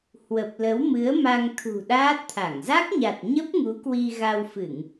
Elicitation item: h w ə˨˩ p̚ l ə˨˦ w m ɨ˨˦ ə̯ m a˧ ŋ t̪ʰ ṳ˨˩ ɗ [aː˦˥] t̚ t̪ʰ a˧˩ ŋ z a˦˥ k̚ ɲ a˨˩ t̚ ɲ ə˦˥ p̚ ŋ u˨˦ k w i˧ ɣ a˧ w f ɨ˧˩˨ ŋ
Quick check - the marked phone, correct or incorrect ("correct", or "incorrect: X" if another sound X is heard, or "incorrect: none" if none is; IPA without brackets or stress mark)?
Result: correct